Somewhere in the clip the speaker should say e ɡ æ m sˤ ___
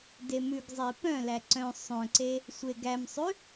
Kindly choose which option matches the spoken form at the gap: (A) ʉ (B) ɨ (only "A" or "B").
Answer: A